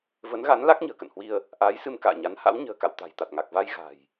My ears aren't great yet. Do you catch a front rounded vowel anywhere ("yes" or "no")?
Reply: no